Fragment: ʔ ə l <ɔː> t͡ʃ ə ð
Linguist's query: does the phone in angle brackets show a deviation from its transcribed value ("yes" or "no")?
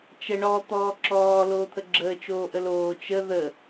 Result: yes